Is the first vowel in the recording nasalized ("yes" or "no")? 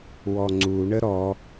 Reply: no